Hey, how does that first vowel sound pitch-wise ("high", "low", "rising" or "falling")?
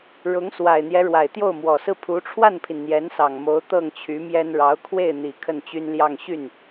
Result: rising